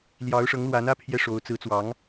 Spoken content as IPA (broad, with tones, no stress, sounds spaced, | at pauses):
l j ɑ˧˥ ʊ̯ ʂ ɤ˧˥ ŋ l w a˧˥ n ä˥ pʰ j ɛ˥ ʂ o˧˥ ʊ̯ t͡s ɹ̩˧˥ t͡s w ɑ˧˥ ŋ